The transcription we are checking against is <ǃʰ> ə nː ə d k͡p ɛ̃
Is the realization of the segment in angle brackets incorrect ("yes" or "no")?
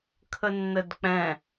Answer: yes